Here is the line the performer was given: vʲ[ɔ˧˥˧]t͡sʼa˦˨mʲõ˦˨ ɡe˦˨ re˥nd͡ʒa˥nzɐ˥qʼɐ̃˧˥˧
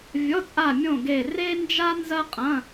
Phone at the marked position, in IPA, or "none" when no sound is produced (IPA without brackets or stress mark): ɔ˧˥˧